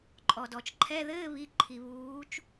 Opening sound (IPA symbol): ǃʼ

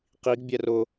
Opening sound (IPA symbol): q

